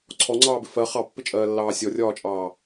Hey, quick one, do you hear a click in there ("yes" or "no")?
yes